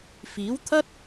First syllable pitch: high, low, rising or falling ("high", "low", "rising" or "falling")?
rising